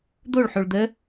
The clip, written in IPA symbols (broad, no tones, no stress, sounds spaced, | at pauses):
d̪ o ɭ ħ o ɭ d̪ ə